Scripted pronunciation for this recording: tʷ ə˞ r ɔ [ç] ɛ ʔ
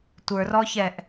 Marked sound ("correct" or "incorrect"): correct